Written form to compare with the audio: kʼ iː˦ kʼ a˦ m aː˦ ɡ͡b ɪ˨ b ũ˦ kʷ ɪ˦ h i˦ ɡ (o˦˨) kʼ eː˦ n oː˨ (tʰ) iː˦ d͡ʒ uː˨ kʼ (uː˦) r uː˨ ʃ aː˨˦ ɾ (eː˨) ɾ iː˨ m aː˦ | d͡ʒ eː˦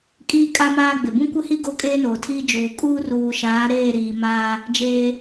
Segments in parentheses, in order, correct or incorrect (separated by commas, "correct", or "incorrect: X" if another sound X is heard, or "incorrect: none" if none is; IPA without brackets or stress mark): incorrect: o˦, correct, correct, incorrect: eː˦˨